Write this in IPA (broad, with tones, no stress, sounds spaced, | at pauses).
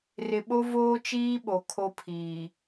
r ɪ˨ ɓ o˦ v oː˦ t͡ʃ iː˦ ɓ o˨ kʰ o˦ pʰ iː˨